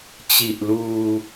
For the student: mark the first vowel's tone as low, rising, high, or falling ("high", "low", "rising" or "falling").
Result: low